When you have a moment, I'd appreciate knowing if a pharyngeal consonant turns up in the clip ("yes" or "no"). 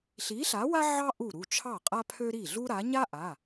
yes